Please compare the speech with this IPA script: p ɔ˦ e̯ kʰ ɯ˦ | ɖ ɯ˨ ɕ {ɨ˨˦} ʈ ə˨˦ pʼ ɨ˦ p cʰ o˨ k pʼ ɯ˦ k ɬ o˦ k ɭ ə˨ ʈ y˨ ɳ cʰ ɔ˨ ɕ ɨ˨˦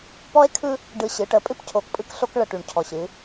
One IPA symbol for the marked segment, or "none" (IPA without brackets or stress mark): ɨ˨˦